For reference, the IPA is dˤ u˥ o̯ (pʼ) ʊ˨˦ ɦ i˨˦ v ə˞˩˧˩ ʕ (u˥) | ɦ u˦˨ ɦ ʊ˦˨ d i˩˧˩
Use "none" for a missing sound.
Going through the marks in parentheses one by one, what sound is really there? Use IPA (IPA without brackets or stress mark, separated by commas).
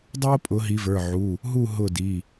pʼ, u˩˧˩